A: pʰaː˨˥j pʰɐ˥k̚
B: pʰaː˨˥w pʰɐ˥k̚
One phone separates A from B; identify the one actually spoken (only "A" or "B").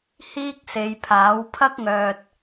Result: B